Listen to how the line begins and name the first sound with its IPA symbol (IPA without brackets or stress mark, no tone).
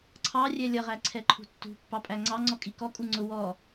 ǀʰ